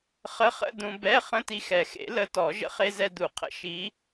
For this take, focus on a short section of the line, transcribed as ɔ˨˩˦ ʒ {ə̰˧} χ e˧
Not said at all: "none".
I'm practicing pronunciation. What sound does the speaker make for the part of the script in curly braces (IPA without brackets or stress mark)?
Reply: ə̰˧